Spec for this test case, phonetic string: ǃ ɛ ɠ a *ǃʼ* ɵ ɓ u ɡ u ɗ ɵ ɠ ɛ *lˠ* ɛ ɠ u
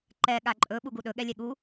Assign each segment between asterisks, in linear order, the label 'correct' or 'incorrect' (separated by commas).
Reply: correct, incorrect